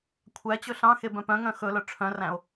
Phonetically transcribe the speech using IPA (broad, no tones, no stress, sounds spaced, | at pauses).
kʷʰ æ t͡ɕ ɵ ɬ ɑ̃ x e b œ̃ p œ̃ ŋ œ̃ x ɵ l œ ʈ͡ʂʰ œ̃ r æ̃ o̯